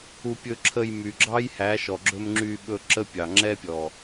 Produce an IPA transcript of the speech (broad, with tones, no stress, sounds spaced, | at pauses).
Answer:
u˧ pʲ ɵ˧ ǁʰ ə˧ j m y˨ ɡ͡ǁ ɑ˦ j h æ˨˦ ʃ ɔ˨ ɡ͡ǁ ɵ˧ m ŋ͡ǁ y˧ ɓ ɵ˧ ǁ ə˦ pʲ ɑ˨ ŋ͡ǁ ɛ˦ pʲ ɔ˨